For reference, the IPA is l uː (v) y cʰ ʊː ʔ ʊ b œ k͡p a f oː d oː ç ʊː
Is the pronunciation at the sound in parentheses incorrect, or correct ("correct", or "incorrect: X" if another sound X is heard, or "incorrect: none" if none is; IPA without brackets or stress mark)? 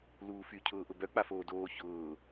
incorrect: f